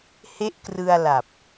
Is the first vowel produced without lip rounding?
yes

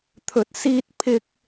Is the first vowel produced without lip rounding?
no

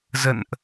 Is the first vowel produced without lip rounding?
yes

